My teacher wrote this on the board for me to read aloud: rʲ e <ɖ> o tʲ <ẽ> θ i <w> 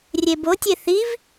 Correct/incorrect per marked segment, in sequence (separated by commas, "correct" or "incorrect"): incorrect, incorrect, incorrect